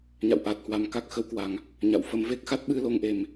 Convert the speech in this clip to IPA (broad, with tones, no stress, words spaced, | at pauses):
ɲa̰˧˨wʔaː˨˩t̚hwa˨˩m ka˦˥k̚xə˨˦wkwa˨˩ŋ | ɲa̰˧˨wfə˧m ve˦˥k̚xa˦˥t̚ ɓɨ˧lo˧ŋʔe˨˩m